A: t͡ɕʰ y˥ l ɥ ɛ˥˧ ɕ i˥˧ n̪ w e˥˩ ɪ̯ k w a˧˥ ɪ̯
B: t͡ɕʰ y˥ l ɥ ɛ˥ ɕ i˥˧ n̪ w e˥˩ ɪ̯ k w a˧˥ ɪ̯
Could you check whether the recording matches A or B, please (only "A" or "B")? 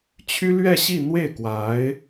A